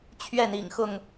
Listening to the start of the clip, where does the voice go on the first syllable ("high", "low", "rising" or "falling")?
falling